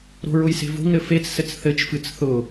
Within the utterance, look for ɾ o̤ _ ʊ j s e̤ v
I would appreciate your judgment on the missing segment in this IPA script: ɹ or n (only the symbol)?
ɹ